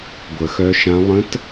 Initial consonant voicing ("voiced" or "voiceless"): voiced